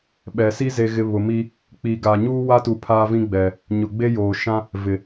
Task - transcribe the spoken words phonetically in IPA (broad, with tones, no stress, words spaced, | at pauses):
ɓɛ˨si˦ ze˨ɣɪ˨ βʊ˨mi˦ | k͡pi˨ɡa˨ɲuː˦ wa˦tu˨ pʰaː˦vĩ˦ɡ͡bɛ˨ | ɲʊ˨ɡ͡be˦joː˨ ʃã˦ | vɪ˨